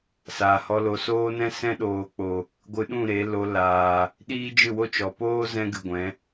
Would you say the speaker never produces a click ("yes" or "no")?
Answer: yes